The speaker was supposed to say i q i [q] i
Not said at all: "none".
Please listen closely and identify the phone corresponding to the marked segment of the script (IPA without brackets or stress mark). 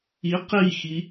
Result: x